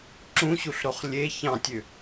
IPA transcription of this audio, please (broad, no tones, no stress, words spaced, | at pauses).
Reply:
ǁũɕuɬɾoχ lʲe çɑ̃tʲø